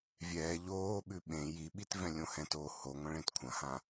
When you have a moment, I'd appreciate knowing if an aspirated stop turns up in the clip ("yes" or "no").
yes